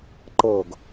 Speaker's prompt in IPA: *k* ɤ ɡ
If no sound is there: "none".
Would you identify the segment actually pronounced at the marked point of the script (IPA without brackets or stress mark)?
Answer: ǃ